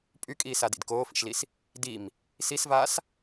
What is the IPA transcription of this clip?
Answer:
pʼ y kʼ iː s a d ḭ d k oː f ḭ ʃ l i s | d i m | s i s v aː s

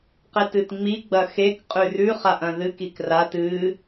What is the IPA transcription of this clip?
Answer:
q e t ɨ t ŋ͡m i ɡ͡b ɐ x e k qʼ ʉ r ʉ χ a ʔ ɐ̃ ð ɨ k i k r a t ɨ

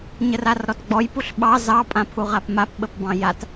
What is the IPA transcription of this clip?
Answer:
ɲ ə r a r ɾ ɔ t ɡ͡b ɔ j p u ɬ ɓ ɑ z ɑ pʼ ã pʰ u ʁ a p m a p ɓ ə p b ɑ̃ j a t

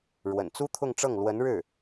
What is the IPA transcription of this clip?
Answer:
ɻ w ə̰˨˩ n t͡s u˥ t̪ʰ ʊ˥˧ ŋ ʈ͡ʂ ɤ˥˩ ŋ l w ə˧˥ n ɻ ɻ̩˥˩

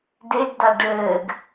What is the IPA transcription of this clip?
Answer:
d e ɡ d a ɖ ɘː ɡ

